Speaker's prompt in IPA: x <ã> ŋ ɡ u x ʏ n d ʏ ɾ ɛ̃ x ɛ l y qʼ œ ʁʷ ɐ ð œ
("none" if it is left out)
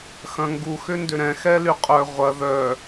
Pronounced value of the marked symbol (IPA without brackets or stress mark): ɐ̃